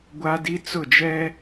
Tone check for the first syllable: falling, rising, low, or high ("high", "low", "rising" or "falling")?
high